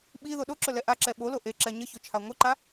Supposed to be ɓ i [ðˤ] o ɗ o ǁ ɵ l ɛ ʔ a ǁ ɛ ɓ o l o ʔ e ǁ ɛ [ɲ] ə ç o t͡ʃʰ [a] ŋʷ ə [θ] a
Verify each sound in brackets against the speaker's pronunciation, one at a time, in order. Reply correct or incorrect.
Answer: incorrect: ð, correct, correct, incorrect: ǃ

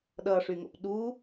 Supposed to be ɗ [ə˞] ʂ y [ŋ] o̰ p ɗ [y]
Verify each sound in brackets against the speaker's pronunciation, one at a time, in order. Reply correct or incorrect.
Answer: incorrect: ʌ, correct, incorrect: u

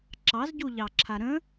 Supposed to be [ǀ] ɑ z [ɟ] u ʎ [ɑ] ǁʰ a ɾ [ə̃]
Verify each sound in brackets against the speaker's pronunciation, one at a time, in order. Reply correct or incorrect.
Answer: incorrect: ǁ, correct, correct, correct

